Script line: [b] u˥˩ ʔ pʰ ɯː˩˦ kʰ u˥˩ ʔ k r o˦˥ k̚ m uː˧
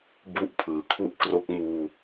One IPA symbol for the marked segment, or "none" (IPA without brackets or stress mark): b